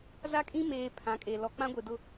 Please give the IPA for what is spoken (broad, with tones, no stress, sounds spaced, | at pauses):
z a˦ kʼ ĩ˦ m eː˨ pʰ ã˨˦ kʼ e˨ l ɔ˨ k͡p ã˦ ɡʷ e˨ d ʊ˦